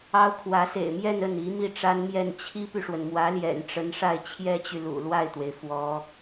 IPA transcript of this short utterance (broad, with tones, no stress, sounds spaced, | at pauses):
ɑ˥ ʊ̯ kʰ w ä˧˥ s ḛ˨˩ ɪ̯ m j ɛ˥˧ n ə˥˩ n i˧˥ m i˥˩ ʈ͡ʂ a˥ n m j ɛ˥˩ n t͡ɕʰ i˥ p y˨ ʂ w ə˩ n m w ä˧˥ l j ɛ̰˨˩ n ʈ͡ʂ ə˧˥ n ʂ a˥˩ ɪ̯ t͡ɕʰ j ɛ˥ t͡ɕ y˨ l ṵ˨˩ l w a˥˩ ɪ̯ t̪ w e˩ ɪ̯ f w ɔ˧˥